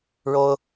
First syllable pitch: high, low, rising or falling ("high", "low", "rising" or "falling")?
high